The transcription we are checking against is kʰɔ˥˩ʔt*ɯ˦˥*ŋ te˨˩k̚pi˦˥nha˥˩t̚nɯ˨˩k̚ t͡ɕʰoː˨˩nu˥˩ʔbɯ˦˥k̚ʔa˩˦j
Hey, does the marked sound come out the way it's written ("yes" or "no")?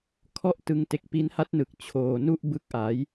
no